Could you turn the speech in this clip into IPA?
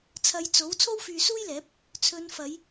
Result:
t͡sʰ ɐ˧ j t͡s o˨˥ w t͡sʰ o˥ w f yː˧ s uː˥ j l ɛː˨˥ p̚ | t͡sʰ ɵ˨˧ n f ɐ˨˧ j

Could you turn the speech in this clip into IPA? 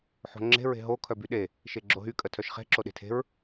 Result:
ħ o̤ ŋ͡ǁ e̤ ɹ e̤ ɦ o kʰ œ b y ɗ e | ʃ e ɡ͡ǁ o ɦ y kʼ ə tʰ œ ʃ χ e̤ ǁ o ɗ e̤ tʰ e̤ ɹ

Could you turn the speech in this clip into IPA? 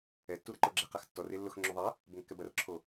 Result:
ɛ tː u ɾ ɐ ǃ o ɡ͡ǁ ɛ q a x tː ɔ r ɪ lː ʊ x ŋ͡ǁ o ðˤ ɐ | b ə ŋ kː ɛ b ɐ r ǁʰ o

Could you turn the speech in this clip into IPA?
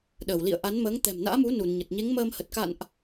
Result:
ɗ əː˧˩ w l ḭ˧˨ ə̯ ʔ a˨˦ n m əː˨˦ ŋ t̪ ɛ̤˨˩ m n a̰ː˧˥ m u˨˦ n u˧˩ n ɲ ə˨˩ t̚ ɲ e˨˦ ŋ m əː˧ m h ə˨˩ t̚ k a̰˧˨ n ʔ

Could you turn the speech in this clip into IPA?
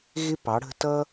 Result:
ɣ ɪ˦ p ɑ˨˦ ɽ ə̤˦ t ʌ˦

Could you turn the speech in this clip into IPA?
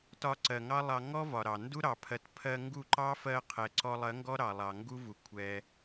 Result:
t ɒ˧ ǀ ɜ˨ ŋ ɑ˦ lˠ ɑ˧ ŋ ɔ˦ v ɒ˨ ɾ ɑ˨ n d u˦ ɾ ɑ˨ pʰ ɜ˨ t pʰ ɜ˧ ŋ ɡ u˦˨ ǃ ɑ˦ f ɜ˧ qʰ ɛ˨ ǀ ɔ˧ lˠ ɜ˨˦ ŋ ɡ ɔ˦ ɾ ɑ˨ lˠ ɑ˨ ŋ ɡ u˦ v u˨ kʷʰ ɛ˧

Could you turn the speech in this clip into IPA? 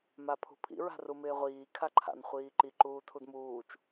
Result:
m a pʰ ṳ pʰ ḭ ɹ a̤ r u m ɪː ʁʷ iː kʰ a ǃʰ a̰ n χʷ iː ǃ i ǃ uː tʰ u d m uː t͡ʃ

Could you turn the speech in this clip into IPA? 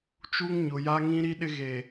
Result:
t͡ʃ u˦ ŋ ɲ ʊ˨ j a˦ ŋ ĩ˦ ɾ i˦ ɗ ɪ˦ ɣ e˨

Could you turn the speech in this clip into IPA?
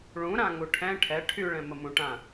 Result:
ɭ ũ ɾ ã ŋ u ʈʰ ɛ̃ ʈʰ ɛ ʈʰ y ɭ ɛ̃ m ə m ũ ʈ ã

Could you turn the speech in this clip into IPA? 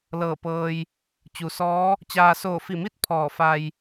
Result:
l ɤː˧˩ p ɤː˧ j | t͡ɕ u˩˧ s ɔː˧˥ | t͡ɕ aː˧ s oː˧˩ f i˧˩ m i˥˨ t̚ pʰ ɔː˧˩ f a˧ j

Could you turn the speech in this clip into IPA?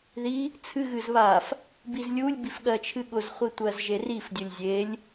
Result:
ð i | t͡sʰ ɨ ɣ ɨ z β a f | b i z lʲ u lʲ b i f ɠ ɜ t͡ʃʰ ɨ ɠ ʊ z χʷ i tʷ ɜ z ʒ e r i f dʲ ʊ lʲ zʲ e lʲ

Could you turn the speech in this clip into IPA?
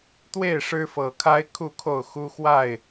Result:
t̪ w e˥˨ ɪ̯ ʂ ɻ̩˦ f ɤ˨˩ kʰ a˦ ɪ̯ kʰ u˥˨ kʰ o˥˨ ʊ̯ x u˦ x w a˥˨ ɪ̯

